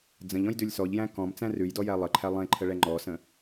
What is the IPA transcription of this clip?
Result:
d͡z ə̃ ʎ ɔ̃ j d ʉ lʲ s ɔ ʎ j æ̃ k ɔ̃ m t͡s æ̃ r ʉ j d ɔ j æ lˠ ə ǃʰ æ lˠ ẽ ǃʰ ə ɭ ɛ ŋ͡ǃ ɔ s ə̃

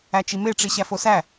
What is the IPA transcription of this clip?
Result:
æ t͡ʃ i m e ʈ͡ʂ i ɕ æ f o s æ

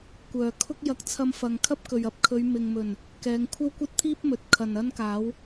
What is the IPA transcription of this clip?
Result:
kʷ œː˨ kʰ ʊ˥ k̚ j ɐ˧ k̚ t͡sʰ ɐ˧ m f ɐ˨ ŋ kʰ ɐ˥ p̚ k ɵ˨ ɥ ɐ˧ p̚ kʰ ɵ˨˧ ɥ m ɪ˨ ŋ m ɵ˨˩ n | k ɛː˨˧ ŋ kʷʰ ɐ˥ w kʷ ɐ˥ t̚ t̪ʰ iː˥ p̚ m ɵ˨˥ t̚ kʰ ɐ˨ n ɐ˥ n k aː˨˥ w

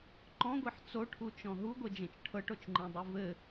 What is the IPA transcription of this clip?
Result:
ǃ ɔ̃ ɡʷ e ħ t͡s o ʈʰ u t͡ʃ ɔ̃ ɦ u ɡʷ e d͡ʒ ẽ t͡ʃ ʈʰ ɤ ʈ o t͡ʃ ŋ͡ǃ ĩ dˤ i v ɘ

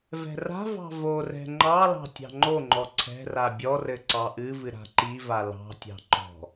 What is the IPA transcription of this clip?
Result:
v ɛ̤ r a̤ v ɑ̤ v o r ɛ̤ ŋ͡ǃ ɑ l ɑ̤ tʲ ɑ̤ ŋ͡ǃ o ŋ͡ǃ ɔ ǀʰ ɛ̤ r a bʲ ɔ r ɘ ǀ ɑ ʔ ɨ v ɨ ɾ a̤ ǃ i v a l ɑ̤ tʲ ɑ̤ ǃ ɔ̤

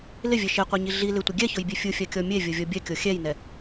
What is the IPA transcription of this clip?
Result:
l ɪ vʲ ɛ ʃ e qʷ e ɲ i ɮ i l ɪ tʷ ɪ ɡʲ ɛ ç ʊ j bʲ e fʲ u fʲ a kʲ ɔ mʲ e vʲ o vʲ ɔ bʲ ɛ kʲ o xʲ ɛ j n ɛ

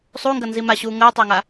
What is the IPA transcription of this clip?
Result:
sˤ u ŋ ɡ ɐ n z i m a ɕ uː ŋ əː tˤ ɐː ŋ a

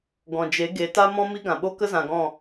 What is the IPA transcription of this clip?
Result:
ɡ ɔ̃˨ d͡ʒ e˨˦ ɡ e˨˦ t a˦ m ɔ̃˦ m i˦ ɡ ã˨ ɓ o˦ k ə˦ z ã˨ ɡ ɔ̃˦˨

